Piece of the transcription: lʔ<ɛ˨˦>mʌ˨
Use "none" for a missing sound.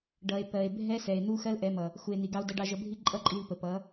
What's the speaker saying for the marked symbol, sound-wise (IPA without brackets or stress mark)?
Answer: ɛ˨˦